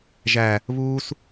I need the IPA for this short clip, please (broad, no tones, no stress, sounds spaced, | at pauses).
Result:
ʒ æ | β uː s